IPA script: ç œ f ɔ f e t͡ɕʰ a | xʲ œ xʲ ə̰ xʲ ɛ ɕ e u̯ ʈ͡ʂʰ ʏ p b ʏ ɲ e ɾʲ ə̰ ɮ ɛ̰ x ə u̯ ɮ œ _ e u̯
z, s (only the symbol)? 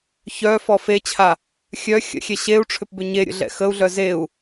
z